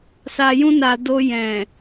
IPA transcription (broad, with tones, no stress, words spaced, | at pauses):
sa˧jũ˦na˧ do˧jɛ̃˨